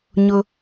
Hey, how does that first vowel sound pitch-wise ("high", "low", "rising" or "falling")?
high